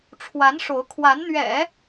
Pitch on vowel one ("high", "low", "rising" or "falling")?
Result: rising